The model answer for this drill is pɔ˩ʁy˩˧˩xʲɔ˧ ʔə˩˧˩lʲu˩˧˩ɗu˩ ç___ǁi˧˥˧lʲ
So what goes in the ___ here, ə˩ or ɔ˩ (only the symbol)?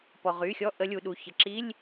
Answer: ə˩